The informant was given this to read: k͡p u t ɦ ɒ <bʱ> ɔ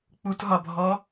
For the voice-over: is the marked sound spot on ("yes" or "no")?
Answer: yes